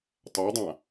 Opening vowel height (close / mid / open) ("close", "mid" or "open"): open